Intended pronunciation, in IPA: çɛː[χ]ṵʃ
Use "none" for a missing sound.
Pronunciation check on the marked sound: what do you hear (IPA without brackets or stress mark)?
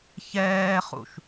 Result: χ